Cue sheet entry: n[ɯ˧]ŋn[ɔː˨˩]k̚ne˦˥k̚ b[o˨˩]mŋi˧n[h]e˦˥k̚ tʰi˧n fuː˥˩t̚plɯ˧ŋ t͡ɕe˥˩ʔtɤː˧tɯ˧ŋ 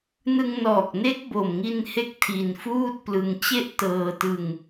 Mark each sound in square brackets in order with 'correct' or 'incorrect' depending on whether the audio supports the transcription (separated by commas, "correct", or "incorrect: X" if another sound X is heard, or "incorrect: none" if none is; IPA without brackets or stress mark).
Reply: correct, correct, correct, correct